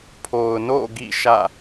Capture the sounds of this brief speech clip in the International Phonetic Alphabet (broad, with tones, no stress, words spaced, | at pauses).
pʰo˨ʊ̯ no̰˦˨ ɡḭ˦˨ ʃä̰˦˨